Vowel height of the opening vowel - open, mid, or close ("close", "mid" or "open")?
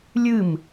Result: close